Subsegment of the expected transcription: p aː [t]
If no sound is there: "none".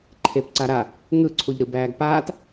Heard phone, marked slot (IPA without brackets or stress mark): t